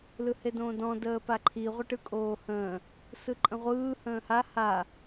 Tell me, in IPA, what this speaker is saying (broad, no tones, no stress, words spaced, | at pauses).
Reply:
lɯhedõːdɔ̃ dəːpaǃʰi ʁʷəʈɯkʼoːhə̃ː | sɯǃʼə̃ʁʷɯː hə̃ːha ha